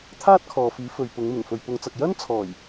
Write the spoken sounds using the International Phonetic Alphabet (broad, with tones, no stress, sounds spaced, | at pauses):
t̪ʰ aː˥ t̚ kʰ ɔː˨ f iː˨˥ f ɵ˨ ɥ p ʊ˨˧ ŋ m ɪ˨˩ ŋ f ɵ˨ ɥ p ʊ˨˧ ŋ t͡s ɐ˨ k̚ j ɐ˥ n t͡sʰ ɔː˨˩ j